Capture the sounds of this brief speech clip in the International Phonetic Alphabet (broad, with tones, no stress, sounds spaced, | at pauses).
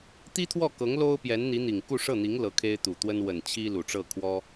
t̪ i˥ t̪ʰ w ɔ˥˩ k ɤ˧˥ ŋ l o˥ ʊ̯ p j ɛ˧˥ n n̪ i˧˥ n̪ i˨˩ ŋ k u˥˧ ʂ ɤ˥˩ n̪ i˧˥ ŋ l ɤ˧˥ kʰ e˥ ɪ̯ t̪ u˨˩ t̪ w ə˥ n w ə˨˩ n t͡ɕʰ i˥ l u˨˩ ʈ͡ʂ ɤ˥˩ kʰ w ɔ˥